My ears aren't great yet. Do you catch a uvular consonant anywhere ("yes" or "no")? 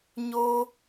no